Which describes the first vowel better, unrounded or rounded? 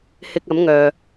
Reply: unrounded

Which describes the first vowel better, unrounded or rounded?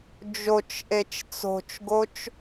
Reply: rounded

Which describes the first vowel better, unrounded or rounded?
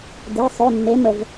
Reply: unrounded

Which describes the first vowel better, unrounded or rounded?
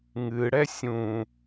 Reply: unrounded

